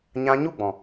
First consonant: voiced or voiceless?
voiced